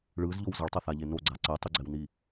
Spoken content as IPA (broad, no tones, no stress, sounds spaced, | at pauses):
ɭ ɯ z ʎ o w z ʌ ɭ tˤ ʌ θ a ʎ e n o ɡ͡ǀ a ǀ ɛ tˤ ɯ ɡ͡ǀ ɛ w n i